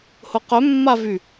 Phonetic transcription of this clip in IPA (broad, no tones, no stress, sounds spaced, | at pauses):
h ʊ q œ mː a v y